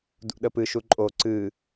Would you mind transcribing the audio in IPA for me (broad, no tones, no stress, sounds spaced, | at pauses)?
d ṵ ɗ ə p ɨ ʃ u ǃʼ o ǀ ɨ